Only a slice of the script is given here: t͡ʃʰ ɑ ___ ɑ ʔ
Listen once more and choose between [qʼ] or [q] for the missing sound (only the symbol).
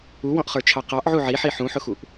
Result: q